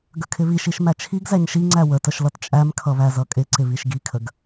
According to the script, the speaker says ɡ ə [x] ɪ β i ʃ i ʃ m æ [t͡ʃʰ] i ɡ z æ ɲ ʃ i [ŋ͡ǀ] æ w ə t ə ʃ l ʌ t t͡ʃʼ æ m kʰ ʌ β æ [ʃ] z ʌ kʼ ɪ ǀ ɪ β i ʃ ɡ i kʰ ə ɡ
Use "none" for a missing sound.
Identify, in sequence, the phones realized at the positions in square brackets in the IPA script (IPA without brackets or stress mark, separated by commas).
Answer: kʰ, t͡ʃʰ, ŋ͡ǀ, none